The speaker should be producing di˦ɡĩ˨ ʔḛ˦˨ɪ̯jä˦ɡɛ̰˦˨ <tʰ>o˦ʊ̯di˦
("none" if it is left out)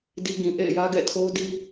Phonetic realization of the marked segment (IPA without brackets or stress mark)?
tʰ